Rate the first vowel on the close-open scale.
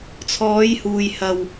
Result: mid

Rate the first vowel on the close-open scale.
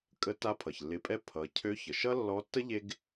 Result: mid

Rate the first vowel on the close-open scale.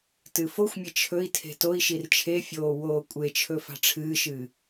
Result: close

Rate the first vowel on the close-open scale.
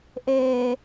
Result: mid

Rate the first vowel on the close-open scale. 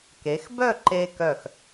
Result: mid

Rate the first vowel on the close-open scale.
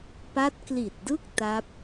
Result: open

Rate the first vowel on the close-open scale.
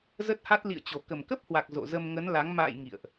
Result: mid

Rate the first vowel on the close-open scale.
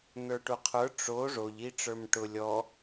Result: mid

